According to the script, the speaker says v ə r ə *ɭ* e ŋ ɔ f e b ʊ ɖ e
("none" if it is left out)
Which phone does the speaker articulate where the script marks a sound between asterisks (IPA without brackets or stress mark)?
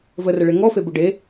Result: ɭ